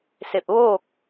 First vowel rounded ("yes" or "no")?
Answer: no